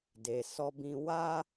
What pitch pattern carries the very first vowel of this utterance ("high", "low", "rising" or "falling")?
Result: low